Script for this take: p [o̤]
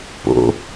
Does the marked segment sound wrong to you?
yes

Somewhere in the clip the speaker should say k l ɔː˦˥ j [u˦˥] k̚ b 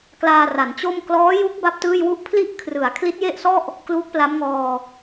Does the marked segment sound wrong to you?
no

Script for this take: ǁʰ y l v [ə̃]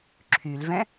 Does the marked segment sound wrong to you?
yes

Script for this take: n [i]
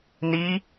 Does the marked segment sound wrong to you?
no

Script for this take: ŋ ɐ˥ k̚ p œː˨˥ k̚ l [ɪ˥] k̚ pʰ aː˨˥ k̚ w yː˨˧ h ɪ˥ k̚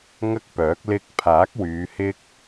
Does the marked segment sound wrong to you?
yes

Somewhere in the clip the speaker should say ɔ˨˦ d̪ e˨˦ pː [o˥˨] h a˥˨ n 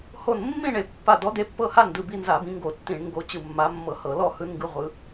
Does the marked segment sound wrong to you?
yes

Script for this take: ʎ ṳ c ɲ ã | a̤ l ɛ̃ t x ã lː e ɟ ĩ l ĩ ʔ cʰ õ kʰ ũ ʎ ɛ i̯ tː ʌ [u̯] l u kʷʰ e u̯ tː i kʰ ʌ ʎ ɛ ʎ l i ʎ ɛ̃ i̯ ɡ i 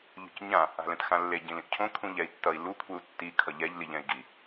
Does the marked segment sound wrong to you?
yes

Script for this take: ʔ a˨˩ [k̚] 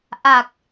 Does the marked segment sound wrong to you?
no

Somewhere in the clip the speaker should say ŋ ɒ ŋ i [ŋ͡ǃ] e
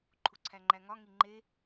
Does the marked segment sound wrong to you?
no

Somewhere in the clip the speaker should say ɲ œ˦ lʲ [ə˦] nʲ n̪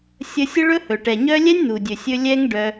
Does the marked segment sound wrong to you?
yes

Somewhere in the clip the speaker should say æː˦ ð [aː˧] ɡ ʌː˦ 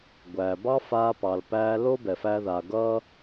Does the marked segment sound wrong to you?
no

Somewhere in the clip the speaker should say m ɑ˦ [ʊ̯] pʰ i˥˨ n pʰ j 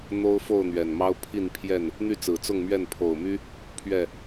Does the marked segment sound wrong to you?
no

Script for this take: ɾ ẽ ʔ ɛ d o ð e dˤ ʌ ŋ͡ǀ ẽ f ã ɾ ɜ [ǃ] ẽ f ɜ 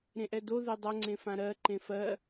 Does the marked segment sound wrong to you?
no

